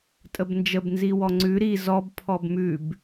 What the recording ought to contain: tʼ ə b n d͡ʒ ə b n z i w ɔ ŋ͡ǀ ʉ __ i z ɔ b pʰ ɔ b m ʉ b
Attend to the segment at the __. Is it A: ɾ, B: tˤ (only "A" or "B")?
A